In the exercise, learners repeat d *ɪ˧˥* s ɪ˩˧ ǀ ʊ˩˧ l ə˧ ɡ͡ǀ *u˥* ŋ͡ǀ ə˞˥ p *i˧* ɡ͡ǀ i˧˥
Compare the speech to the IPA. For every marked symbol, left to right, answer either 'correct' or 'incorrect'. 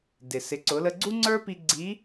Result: incorrect: ɪ˩, correct, correct

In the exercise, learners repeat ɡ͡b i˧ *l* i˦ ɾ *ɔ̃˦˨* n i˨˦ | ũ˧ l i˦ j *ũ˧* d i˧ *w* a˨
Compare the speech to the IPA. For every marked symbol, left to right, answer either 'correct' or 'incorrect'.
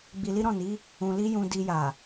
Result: correct, correct, correct, incorrect: j

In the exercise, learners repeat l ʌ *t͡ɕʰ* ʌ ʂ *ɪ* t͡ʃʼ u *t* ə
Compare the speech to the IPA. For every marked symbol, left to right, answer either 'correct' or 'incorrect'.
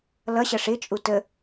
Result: incorrect: ɕ, correct, correct

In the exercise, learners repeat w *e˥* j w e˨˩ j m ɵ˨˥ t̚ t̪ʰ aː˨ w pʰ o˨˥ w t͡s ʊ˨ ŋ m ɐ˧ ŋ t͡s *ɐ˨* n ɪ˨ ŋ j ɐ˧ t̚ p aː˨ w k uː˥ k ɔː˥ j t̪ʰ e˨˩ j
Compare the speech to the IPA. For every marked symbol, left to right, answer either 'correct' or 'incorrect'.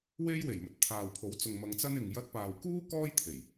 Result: correct, incorrect: ɐ˥

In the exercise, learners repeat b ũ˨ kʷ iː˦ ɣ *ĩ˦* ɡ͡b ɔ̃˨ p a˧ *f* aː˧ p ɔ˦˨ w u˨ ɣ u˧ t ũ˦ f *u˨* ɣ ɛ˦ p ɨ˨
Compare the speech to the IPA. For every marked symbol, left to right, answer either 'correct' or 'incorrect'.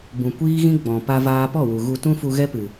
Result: correct, incorrect: v, incorrect: u˧

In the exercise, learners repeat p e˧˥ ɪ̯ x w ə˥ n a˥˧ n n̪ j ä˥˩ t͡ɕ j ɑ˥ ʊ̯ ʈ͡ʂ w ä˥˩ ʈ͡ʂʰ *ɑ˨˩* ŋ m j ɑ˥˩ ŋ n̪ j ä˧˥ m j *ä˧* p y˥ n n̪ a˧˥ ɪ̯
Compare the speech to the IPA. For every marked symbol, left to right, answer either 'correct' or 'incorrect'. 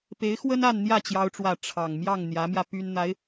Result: correct, correct

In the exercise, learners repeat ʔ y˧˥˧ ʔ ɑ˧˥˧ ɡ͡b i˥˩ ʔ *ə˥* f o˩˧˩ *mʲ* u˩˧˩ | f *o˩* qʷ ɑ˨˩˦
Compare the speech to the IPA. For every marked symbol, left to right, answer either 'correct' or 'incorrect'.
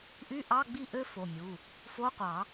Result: incorrect: ø˥, correct, incorrect: o˧˥˧

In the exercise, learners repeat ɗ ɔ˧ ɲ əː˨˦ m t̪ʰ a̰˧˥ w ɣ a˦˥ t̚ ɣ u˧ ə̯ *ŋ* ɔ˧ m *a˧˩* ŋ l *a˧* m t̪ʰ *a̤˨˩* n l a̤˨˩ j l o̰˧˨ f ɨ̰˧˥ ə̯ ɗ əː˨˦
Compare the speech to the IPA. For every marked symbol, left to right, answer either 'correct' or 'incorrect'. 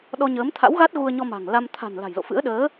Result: incorrect: ɲ, incorrect: a̤˨˩, correct, correct

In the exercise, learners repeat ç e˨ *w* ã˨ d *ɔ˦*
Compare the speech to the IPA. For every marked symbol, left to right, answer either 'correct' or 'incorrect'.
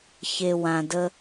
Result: correct, incorrect: ə˦

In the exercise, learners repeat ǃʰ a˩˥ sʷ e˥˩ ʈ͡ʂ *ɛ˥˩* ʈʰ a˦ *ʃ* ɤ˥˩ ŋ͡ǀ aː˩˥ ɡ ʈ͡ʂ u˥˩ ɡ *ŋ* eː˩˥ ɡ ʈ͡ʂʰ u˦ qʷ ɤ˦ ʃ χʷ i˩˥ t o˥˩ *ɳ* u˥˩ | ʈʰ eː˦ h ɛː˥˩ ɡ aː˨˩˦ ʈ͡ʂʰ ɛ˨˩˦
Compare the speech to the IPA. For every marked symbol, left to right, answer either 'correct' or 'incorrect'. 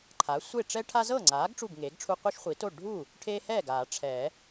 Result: incorrect: ɛ˦, incorrect: z, correct, incorrect: ɖʱ

